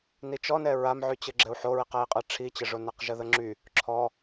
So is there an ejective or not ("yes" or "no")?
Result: yes